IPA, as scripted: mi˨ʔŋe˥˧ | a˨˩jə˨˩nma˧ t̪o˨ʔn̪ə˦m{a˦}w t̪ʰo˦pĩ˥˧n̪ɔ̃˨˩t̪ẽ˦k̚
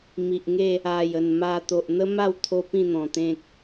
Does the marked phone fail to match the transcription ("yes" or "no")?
yes